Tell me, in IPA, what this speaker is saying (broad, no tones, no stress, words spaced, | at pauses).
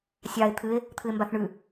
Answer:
sʲɑe̯ t̪ʰɨe̯ | t̪ʰɨe̯mbaθɳʉ